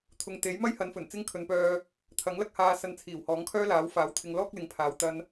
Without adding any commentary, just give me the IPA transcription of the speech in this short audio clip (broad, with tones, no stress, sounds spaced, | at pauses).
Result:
t̪ʰ ʊ˨ ŋ t̪ e˨˥ j m ɐ˥ j h ɐ˨˧ n f ɵ˨˩ n t͡s ɪ˥ ŋ kʰ ɵ˨˧ n p œː˧ | t̪ʰ ɐ˨˥ ŋ l ɐ˧ k̚ h aː˨ s ɐ˨ n t͡sʰ iː˨˩ w h ɔː˨˥ ŋ kʰ œː˥ l aː˨˥ w f aː˨˥ w t̪ʰ ɪ˧ ŋ l ɔː˥ k̚ l ɪ˨ ŋ pʰ aː˨ w t̪ ɐ˧ n